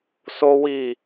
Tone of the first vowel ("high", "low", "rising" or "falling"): high